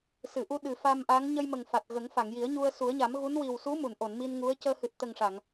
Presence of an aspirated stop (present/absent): absent